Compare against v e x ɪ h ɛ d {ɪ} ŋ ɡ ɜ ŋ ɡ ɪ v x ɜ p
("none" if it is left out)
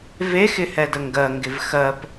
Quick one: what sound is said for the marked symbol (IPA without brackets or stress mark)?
ə